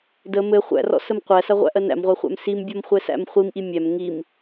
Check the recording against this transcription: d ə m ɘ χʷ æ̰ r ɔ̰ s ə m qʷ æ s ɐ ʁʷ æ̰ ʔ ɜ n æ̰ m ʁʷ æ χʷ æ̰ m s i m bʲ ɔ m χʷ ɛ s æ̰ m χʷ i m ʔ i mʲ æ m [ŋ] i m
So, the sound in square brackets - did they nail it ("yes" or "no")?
yes